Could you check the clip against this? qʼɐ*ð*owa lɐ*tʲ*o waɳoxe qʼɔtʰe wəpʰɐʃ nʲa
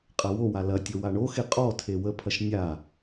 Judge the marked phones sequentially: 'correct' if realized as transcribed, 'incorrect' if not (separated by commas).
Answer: incorrect, correct